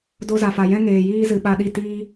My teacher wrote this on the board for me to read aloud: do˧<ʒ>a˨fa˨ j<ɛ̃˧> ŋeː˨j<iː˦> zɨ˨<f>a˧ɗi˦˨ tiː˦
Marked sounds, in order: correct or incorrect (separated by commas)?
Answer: incorrect, correct, correct, incorrect